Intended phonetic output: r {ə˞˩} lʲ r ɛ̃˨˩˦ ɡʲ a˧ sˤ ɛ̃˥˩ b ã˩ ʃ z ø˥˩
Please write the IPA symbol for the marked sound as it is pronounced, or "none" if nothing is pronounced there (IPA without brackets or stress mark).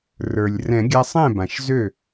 ə˞˩